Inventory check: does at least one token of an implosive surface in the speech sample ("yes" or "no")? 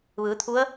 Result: no